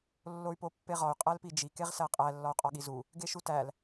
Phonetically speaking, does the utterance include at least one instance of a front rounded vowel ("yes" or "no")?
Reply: yes